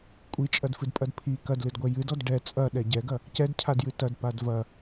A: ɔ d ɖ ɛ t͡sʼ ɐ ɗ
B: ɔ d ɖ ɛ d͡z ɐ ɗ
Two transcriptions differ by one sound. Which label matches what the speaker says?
A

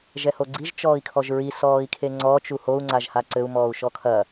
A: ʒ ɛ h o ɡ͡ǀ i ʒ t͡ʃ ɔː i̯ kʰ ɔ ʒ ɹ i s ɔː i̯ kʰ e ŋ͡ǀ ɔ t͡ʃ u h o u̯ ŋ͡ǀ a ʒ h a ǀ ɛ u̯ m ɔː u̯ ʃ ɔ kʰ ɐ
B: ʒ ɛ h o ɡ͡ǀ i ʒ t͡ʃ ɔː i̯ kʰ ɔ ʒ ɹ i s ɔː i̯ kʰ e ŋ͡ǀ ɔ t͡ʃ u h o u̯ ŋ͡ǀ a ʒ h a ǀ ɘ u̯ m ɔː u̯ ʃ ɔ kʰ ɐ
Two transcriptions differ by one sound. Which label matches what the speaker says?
B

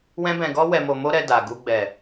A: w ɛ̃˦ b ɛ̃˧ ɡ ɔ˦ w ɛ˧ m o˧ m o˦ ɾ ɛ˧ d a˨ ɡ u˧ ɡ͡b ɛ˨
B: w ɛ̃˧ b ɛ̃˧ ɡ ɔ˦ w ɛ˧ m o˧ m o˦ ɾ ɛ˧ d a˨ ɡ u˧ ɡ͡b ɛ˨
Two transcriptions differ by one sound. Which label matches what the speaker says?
A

